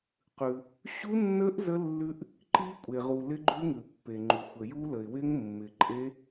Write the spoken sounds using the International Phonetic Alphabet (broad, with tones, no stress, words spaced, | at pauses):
qʉ˩ | ɕu˦˥nːə˦˥ʔ zə˦˥ lːʉ˦˥ʔ | ǃi˦˥kʷʼe˩ʁu˩ lɪ˦˥ɡ͡ǃʉ˦˥ŋʉ˩ pːe˩ŋ͡ǃu˩ xʷə˩ju˦˥lə˩ɪ̯ wɪ˦˥ŋmːɪ˩ǃʼe˦˥